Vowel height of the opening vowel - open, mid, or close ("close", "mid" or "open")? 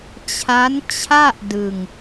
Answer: open